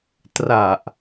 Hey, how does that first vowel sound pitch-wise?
low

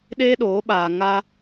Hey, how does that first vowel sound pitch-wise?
high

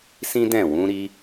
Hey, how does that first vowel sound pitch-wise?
high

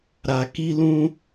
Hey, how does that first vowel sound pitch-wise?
low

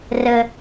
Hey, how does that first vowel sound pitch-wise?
low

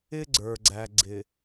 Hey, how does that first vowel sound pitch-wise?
high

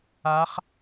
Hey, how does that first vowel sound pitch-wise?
rising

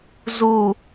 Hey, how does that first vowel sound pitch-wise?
low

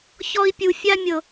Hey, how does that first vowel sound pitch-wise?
high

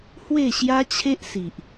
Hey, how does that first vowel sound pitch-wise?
falling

